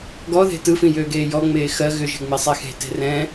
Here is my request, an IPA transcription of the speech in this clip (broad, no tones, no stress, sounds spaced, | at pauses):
ɡ ɔ ð e̤ t ɯ f ĩ j øː ɡ eː j ɔ ŋ͡m eː x ɜ ɣ ʏ ʒ e̤ ŋ͡m e sˤ e x e̤ t e̤ r ɛ̃